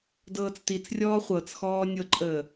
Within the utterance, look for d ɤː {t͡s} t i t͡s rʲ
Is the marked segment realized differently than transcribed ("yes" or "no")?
no